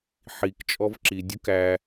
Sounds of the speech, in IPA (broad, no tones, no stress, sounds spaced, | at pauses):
ħ i k t͡ʃʼ ɔ v ǁ i dʲ u k æ